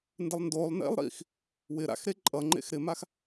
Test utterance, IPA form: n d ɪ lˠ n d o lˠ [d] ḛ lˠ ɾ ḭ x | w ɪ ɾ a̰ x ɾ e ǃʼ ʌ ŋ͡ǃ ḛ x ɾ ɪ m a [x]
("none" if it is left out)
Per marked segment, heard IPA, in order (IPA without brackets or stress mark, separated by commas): n, x